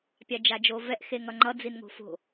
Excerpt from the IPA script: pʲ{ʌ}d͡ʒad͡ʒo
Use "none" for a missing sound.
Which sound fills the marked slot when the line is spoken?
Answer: a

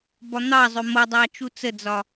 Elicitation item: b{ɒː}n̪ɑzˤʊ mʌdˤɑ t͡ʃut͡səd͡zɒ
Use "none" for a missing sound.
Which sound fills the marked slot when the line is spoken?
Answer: ɒ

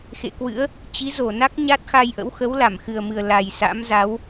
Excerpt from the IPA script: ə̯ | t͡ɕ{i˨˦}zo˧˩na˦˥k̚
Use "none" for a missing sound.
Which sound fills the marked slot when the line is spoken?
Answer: i˨˦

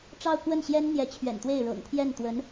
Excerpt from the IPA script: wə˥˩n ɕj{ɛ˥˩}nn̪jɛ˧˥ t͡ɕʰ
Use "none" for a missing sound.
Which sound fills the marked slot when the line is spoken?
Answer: ɛ˥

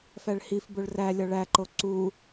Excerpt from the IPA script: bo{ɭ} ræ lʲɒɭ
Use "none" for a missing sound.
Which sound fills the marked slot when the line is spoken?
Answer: ɭ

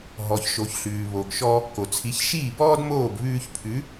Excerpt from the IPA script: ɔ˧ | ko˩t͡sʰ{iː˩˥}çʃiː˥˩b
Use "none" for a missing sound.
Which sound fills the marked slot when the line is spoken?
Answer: i˩˥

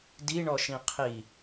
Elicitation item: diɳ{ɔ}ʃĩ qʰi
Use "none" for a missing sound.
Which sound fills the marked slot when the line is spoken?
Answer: ɔ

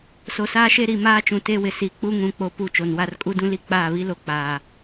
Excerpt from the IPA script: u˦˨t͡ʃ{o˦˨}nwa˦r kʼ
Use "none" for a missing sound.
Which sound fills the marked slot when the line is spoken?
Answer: o˨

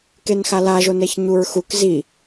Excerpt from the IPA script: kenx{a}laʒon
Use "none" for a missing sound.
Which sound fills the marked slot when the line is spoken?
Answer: a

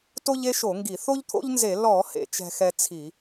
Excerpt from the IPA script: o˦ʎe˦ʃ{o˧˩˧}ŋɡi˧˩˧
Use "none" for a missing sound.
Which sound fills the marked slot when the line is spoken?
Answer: o˧˩˧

